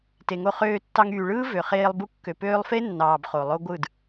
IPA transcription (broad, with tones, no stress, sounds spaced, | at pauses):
t e˨ ŋ o˧ χ øː˧ tː ɑ˧ ŋ yː˨ ɭ ɯː˦ v ø˨ χ eː˧ lˠ b u˧ kː ø˨ p øː˧ lˠ f e˦ nː ɑː˨ b χ o˨ lˠ o˦ ɡʷ ɯ˦˨ d